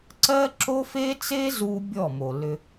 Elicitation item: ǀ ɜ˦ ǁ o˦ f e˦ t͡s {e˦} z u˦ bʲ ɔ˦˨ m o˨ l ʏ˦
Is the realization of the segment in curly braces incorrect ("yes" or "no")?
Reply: no